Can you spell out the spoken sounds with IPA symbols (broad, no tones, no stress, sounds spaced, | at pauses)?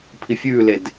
pʰ i fʲ ʉː l e d